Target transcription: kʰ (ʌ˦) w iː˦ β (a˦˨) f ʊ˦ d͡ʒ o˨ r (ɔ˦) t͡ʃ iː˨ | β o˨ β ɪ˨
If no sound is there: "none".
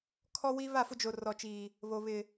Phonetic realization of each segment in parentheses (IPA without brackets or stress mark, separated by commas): ɔ˦, a˦˨, ɔ˨